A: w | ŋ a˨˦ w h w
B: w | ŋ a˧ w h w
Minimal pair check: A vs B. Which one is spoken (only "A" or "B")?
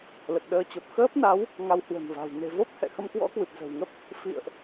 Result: B